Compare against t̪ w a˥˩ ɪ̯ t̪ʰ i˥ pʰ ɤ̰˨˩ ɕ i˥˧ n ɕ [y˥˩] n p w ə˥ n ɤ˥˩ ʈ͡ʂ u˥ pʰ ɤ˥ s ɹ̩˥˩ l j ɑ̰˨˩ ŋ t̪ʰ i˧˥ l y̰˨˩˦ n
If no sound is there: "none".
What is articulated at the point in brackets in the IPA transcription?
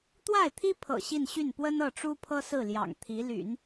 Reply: y˥˩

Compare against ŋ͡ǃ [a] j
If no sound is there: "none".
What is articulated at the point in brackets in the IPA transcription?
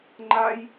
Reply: a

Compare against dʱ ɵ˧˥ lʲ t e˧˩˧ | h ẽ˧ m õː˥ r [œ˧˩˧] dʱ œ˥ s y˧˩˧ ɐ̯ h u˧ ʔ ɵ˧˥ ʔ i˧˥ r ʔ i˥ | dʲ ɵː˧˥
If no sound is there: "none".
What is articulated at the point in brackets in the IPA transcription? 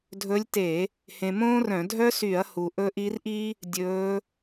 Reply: œ̃˧˩˧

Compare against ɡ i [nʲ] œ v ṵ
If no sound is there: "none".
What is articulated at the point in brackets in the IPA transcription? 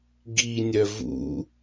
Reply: nʲ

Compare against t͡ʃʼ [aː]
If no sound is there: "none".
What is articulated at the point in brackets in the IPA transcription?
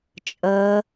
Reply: əː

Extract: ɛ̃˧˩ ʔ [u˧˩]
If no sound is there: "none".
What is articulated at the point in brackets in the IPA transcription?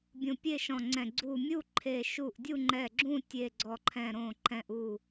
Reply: u˧˩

